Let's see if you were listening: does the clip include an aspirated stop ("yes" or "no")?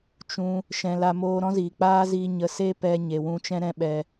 no